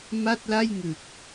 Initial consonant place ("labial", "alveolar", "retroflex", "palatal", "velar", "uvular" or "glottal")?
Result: labial